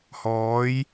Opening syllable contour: rising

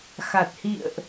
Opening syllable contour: low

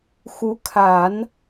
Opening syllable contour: rising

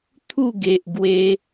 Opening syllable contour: falling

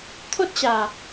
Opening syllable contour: high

